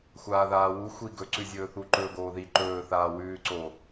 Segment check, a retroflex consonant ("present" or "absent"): absent